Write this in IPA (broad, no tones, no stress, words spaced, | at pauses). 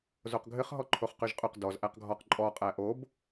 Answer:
zoqɡʱɘχ ɦɔǃʰoχqyʒqʼøq dɔz ʔæqɡʱɔq ǃʼɔ qʼæʔob